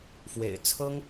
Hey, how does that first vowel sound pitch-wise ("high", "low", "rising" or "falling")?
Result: low